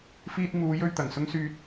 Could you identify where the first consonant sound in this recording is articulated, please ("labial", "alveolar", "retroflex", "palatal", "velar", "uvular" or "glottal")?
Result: labial